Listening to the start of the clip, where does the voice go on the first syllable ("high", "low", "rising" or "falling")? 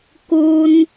high